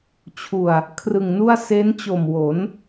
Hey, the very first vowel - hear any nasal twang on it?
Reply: no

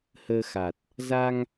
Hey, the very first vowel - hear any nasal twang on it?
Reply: no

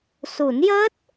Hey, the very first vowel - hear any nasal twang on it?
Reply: no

